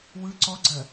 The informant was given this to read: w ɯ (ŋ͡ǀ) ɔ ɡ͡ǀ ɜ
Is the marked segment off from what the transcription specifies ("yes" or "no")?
yes